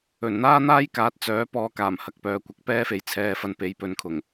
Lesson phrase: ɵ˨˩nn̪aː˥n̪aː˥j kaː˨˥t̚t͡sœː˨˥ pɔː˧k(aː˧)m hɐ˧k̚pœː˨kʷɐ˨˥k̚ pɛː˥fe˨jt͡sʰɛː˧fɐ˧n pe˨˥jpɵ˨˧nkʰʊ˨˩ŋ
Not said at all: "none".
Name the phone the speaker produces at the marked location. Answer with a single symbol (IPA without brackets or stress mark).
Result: aː˨˩